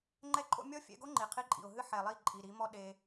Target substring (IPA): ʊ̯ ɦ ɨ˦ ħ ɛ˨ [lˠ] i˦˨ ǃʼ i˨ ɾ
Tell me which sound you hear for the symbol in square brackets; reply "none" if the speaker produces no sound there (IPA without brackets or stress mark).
lˠ